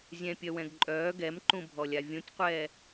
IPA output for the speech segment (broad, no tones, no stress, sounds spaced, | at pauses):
zʲ ɛ̃ pʲ œ w ɛ̃ ɡ ǃʼ œː ɡ ɛ m ǃ ũ bʱ ɔ lʲ a vʲ ũ tʲ qʷ ɛː